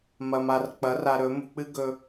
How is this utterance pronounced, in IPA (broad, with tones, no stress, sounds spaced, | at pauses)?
m ɐ˧ m a˧ r k͡p ɐ˨˦ r a˧ ɾ ɵ˨˦ m ṳ˧ k͡p ɨ˦ ɡ ɵ˧